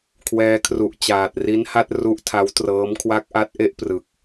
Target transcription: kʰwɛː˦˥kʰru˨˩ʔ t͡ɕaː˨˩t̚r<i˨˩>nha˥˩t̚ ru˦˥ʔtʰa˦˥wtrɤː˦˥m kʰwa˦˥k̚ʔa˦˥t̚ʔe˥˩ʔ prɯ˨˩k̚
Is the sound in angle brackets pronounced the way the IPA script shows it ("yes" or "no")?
no